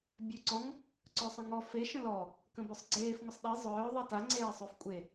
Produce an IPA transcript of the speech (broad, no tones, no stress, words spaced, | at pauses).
bʲøǀɔ̃ŋ | ǀœsˤə̃ŋɔ fe ʃə̃lɔ | kə̃bœsˤɡ͡ǀeːf ŋʷəsˤɗi zˤœː ðˤita ŋ͡ǀeːsˤøfkʷʼe